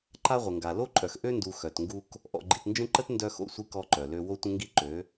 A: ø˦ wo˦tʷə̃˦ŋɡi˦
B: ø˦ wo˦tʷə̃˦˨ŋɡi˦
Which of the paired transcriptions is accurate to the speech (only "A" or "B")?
A